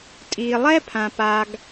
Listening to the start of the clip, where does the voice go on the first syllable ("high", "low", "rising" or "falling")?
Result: low